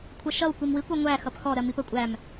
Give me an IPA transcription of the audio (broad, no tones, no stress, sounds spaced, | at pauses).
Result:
kʷʰ ʌ ʃ ʌ w kʷ i m w i kʷ ɔ ŋʷ æ x ʌ p x ɔ ɾ ɜ m i p ə kʷʼ æ m